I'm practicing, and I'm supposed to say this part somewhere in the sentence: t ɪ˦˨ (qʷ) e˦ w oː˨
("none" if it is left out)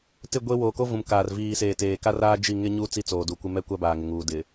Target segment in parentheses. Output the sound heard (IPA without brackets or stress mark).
ɡʷ